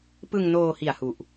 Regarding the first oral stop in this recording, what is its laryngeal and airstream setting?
plain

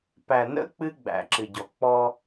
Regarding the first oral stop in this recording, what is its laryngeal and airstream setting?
plain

